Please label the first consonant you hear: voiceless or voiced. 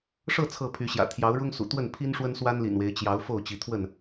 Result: voiceless